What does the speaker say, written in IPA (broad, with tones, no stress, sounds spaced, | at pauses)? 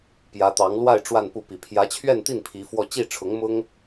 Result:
p j ä˧˥ t̪ ɑ˧˥ ŋ l w a˥˧ ɪ̯ ʈ͡ʂ w a˥˧ n p u˥˩ p i˨˩ pʰ j ä˧˥ t͡ɕʰ ɥ ɛ˥˧ n t̪ i˥˩ n pʰ i˧˥ f w ɔ˥˧ t͡ɕ i˥˩ ʈ͡ʂʰ ʊ˧˥ ŋ m ʊ˥ ŋ